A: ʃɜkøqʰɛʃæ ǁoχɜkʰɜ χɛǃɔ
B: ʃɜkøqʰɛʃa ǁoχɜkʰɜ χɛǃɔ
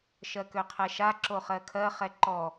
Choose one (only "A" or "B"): B